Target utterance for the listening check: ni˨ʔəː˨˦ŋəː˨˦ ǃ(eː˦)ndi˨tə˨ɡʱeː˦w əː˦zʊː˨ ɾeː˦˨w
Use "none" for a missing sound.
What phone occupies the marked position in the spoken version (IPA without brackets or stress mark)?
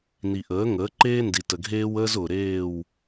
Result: eː˦